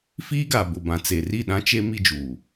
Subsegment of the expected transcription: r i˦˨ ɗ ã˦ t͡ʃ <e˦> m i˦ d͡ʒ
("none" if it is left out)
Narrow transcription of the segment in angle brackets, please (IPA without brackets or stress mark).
e˦